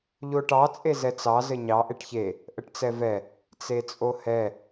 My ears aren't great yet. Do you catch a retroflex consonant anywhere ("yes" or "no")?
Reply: yes